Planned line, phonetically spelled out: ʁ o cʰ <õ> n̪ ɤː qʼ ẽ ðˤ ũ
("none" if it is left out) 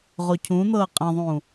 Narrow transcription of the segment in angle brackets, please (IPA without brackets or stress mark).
ũ